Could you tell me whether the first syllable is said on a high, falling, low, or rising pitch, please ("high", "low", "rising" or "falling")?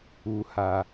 low